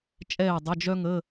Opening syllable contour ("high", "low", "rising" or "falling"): falling